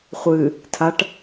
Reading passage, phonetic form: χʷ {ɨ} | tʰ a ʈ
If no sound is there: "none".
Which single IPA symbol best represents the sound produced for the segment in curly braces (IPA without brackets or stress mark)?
ɨ